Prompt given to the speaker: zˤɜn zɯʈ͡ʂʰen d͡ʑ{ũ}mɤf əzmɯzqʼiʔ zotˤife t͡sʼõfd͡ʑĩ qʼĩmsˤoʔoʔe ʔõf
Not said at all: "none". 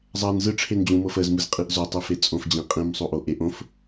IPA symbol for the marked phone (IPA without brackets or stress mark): ũ